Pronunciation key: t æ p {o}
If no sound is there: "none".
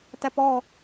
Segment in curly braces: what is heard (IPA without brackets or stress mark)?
ɔ